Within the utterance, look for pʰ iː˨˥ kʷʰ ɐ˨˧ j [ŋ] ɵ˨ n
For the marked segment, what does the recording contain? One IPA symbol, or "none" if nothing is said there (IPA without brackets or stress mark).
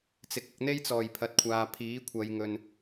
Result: ŋ